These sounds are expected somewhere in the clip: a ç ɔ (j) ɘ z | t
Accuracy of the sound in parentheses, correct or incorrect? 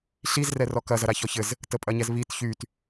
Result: incorrect